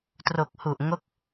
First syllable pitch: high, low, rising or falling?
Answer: low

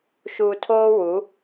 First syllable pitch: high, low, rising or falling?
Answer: low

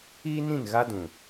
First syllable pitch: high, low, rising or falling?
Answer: high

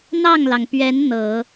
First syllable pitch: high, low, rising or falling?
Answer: falling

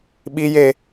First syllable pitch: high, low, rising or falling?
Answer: high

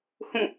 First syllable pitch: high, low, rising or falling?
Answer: falling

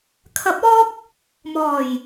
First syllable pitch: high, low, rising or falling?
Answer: rising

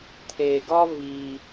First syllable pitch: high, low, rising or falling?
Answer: low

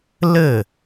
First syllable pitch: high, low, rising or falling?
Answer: falling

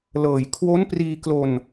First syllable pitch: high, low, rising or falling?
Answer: low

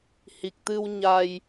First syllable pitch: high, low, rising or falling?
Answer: low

